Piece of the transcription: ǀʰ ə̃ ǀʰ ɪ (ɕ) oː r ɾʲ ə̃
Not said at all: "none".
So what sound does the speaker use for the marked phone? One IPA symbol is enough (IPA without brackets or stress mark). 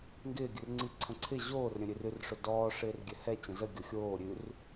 ʑ